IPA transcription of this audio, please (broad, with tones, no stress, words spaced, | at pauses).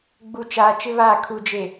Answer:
ɡ͡bu˨t͡ʃaː˨ t͡ʃɪ˦βaː˦˨ kʰu˨d͡ʒe˨